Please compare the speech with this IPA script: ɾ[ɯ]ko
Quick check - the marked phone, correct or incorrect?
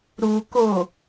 incorrect